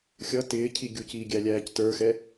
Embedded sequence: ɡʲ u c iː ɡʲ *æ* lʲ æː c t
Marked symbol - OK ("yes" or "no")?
yes